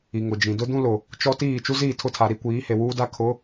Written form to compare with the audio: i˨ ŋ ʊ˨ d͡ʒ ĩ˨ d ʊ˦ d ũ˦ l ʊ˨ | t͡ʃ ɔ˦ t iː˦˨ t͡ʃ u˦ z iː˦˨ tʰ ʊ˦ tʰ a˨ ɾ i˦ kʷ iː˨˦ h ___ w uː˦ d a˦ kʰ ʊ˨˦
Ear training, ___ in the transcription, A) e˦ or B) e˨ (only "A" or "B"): B